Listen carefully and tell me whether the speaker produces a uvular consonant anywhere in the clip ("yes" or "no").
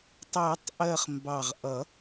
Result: yes